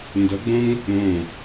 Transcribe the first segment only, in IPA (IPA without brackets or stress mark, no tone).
n